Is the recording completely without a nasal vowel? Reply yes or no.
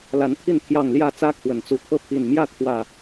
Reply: yes